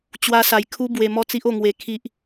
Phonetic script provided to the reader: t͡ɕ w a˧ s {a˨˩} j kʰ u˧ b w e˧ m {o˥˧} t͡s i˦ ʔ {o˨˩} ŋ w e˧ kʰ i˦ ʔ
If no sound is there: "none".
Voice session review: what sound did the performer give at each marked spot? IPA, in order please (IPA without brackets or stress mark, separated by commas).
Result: a˨˩, ɔ˥˧, o˥˧